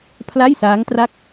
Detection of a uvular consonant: absent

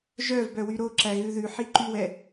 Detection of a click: present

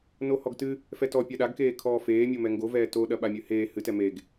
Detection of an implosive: present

